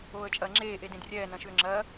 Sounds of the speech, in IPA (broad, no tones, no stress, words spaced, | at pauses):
oːə̯t͡ʃʼɐːŋ͡ǁeː ʔedẽdrʲɛː nɐ̃ʃʏːŋ͡ǁɐː